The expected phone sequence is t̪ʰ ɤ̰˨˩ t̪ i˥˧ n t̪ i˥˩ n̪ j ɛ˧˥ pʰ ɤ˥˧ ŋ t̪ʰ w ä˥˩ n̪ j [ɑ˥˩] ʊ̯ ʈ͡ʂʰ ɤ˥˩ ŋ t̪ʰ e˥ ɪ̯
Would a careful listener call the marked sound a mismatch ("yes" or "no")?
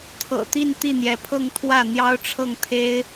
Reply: yes